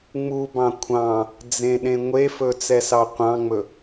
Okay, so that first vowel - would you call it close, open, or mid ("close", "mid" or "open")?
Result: close